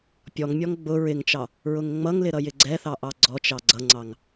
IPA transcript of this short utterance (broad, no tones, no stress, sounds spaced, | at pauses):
pʲ ɔ ŋ mʲ ɔ ŋ ɡ͡b ʊ ɹ ɪ ŋ t͡ʃ ɑ | ɹ ʊ ŋ ŋ͡m ʌ ŋ l ɪ ɾ ʌ j ɪ ɡ͡ǀ ɛ θ ɑ ʔ ɑ ɡ͡ǀ ɔ t͡ʃ ɑ ɡ͡ǀ ʌ ŋ͡ǀ ɑ ŋ